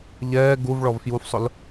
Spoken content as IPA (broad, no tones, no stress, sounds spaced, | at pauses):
ʎ ɛː ɡ u v ɭ ɔ v f j u f sˤ ʊ l